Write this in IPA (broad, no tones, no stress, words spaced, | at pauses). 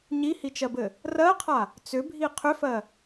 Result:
ɲihit͡ʃɜbɘ | rɜqʰa | t͡sʏbʱi qʰʏfɜ